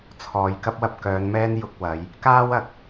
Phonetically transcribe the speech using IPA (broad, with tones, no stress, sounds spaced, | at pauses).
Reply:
t͡sʰ ɔː˨ j k ɐ˥ p̚ w ɐ˧ p̚ k œː˨˧ n m ɛː˥ n j ʊ˧ k̚ w ɐ˨˧ j | k aː˥ w ɐ˨ k̚